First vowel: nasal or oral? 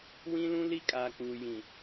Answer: nasal